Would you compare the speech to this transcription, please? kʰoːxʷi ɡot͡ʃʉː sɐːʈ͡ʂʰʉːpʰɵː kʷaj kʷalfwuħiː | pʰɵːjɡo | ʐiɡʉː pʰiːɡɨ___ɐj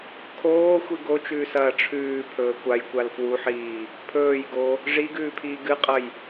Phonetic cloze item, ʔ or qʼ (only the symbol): qʼ